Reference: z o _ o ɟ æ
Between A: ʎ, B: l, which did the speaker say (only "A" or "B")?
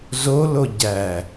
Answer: B